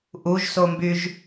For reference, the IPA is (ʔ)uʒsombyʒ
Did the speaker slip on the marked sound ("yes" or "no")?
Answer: no